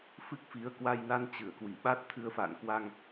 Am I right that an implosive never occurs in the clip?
no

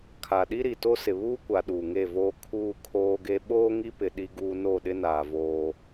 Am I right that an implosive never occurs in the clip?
no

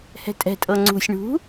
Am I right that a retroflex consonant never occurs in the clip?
no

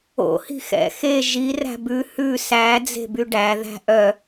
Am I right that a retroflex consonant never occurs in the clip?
no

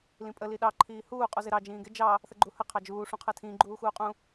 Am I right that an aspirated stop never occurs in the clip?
no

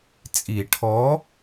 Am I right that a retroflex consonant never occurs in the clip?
no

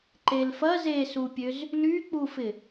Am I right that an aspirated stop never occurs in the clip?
yes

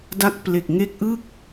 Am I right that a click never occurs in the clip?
yes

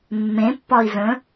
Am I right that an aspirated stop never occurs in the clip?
yes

